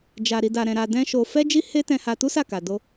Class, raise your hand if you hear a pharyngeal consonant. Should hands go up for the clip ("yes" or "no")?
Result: no